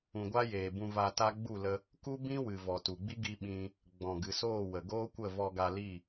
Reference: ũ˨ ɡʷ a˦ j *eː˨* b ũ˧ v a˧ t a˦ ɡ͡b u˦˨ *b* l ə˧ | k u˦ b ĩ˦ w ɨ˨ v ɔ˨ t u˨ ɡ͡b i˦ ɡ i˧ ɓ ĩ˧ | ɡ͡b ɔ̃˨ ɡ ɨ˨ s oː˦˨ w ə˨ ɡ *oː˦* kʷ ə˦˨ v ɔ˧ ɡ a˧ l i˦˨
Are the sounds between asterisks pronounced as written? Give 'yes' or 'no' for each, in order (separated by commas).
yes, no, yes